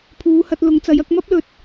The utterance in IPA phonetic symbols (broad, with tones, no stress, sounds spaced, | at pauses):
pʰ uː˨˧ h ɐ˧ t̚ l ʊ˨˥ ŋ t͡s ɐ˨˥ j ɐ˧ k̚ m ɐ˥ p̚ l ɵ˨˥ t̚